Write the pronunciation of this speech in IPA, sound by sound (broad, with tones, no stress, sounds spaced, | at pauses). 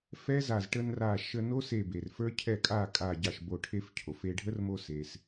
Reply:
f ɛ˦˥ z a˧˩ z ʈ ə˧ n r a˧˩ ʃ ə˧ n o˦˥ s e˧˩ b e˩ r f ə˞˦˥ cʰ ɛ˥˩ kʼ a˥˩ kʼ a˧˩ ɟ ɑ˧˩ ʃ b o˧˩ ʈʰ e˧ f cʰ o˩ f e˧ ɖʱ ə˦˥ r m o˧ s e˩ s